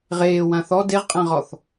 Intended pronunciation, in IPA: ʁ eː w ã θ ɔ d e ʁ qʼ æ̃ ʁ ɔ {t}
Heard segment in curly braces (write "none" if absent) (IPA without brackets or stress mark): θ